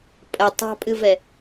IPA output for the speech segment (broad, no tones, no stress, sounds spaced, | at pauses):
pʼ ɐ tˤ ɑ̤ pʼ ɨ v ɛ